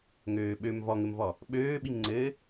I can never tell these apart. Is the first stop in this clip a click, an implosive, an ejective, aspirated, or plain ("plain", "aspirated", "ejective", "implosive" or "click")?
implosive